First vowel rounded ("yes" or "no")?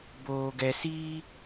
yes